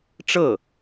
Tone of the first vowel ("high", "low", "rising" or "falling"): falling